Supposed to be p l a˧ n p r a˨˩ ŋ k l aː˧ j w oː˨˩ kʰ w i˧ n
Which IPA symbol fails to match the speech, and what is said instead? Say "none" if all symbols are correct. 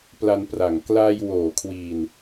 none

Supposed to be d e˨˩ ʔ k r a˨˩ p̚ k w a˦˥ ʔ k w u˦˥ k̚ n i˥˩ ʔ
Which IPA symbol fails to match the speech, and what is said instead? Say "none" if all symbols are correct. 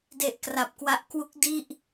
n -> d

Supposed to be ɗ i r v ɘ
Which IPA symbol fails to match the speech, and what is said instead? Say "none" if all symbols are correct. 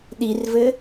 none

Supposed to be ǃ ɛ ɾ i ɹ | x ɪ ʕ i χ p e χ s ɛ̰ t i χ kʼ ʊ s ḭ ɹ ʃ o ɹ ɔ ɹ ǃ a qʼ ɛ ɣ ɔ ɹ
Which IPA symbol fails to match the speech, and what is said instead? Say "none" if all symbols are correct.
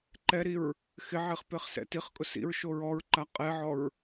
ɣ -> ʕ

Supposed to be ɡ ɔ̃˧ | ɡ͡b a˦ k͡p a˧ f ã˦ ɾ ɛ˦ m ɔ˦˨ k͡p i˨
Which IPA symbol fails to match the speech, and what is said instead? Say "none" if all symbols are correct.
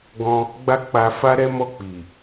ã˦ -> a˦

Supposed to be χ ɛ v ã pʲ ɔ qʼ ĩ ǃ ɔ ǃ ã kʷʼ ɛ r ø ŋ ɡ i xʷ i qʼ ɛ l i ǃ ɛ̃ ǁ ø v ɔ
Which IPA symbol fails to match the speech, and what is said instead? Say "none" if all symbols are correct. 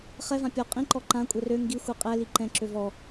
none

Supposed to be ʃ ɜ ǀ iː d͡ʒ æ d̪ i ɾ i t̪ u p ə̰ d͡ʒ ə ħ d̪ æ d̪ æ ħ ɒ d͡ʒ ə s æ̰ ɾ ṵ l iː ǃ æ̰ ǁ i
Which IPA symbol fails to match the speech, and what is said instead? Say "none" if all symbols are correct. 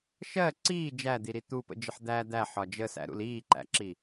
none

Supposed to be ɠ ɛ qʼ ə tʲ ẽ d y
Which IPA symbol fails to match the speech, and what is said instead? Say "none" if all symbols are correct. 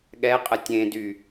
none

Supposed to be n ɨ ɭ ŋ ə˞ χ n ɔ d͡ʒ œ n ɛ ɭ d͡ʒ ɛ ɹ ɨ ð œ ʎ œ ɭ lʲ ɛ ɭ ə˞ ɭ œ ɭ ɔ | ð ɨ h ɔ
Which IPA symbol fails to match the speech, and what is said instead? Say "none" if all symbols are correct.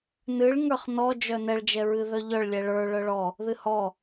none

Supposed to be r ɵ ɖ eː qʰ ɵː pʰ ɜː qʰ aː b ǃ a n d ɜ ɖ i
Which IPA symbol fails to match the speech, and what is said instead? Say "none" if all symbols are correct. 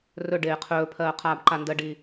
none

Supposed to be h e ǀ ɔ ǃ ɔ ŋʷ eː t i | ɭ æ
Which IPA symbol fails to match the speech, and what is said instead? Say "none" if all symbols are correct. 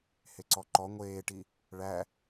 t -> ʈ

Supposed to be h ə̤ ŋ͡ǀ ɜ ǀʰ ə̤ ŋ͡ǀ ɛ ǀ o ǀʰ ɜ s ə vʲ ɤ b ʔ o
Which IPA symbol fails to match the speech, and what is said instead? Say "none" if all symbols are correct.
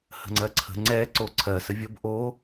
none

